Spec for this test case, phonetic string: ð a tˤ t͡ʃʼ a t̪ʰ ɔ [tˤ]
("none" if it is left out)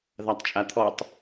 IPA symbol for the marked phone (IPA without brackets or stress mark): tˤ